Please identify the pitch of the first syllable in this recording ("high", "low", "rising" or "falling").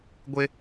high